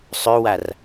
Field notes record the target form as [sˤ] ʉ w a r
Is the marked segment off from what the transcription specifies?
no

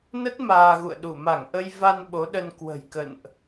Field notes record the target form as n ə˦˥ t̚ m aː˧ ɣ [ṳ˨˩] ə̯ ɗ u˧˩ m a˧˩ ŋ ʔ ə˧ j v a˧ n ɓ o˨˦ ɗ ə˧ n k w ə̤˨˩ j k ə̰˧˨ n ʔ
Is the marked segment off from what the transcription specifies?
yes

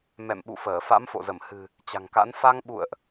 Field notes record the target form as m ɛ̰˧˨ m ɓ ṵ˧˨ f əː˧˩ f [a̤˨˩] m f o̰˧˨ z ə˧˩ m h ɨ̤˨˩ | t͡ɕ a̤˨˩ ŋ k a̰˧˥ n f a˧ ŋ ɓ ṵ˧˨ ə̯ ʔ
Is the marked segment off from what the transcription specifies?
yes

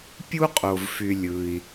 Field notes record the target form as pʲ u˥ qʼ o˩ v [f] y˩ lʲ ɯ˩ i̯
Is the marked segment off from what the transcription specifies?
no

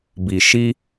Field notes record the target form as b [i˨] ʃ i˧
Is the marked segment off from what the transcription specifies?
no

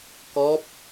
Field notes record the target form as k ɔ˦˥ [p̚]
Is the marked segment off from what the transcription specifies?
no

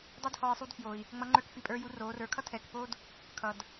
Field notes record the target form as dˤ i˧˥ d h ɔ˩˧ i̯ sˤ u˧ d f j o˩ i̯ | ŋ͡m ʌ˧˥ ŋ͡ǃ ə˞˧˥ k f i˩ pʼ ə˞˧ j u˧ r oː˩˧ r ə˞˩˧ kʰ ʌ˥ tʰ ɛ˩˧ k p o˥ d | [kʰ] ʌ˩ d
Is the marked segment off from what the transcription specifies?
no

